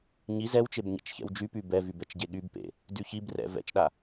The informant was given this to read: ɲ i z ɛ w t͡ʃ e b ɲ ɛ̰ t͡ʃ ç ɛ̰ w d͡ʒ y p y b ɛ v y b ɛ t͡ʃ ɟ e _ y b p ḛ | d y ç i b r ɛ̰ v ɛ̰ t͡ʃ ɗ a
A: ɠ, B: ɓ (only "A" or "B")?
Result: A